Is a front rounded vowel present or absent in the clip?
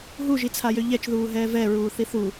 present